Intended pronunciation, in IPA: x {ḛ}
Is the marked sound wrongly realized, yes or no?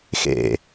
no